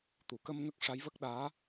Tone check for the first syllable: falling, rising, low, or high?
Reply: low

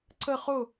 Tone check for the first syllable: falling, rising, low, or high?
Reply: falling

